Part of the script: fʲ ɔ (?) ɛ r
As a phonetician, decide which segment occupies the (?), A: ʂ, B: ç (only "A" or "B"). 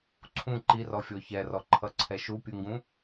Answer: B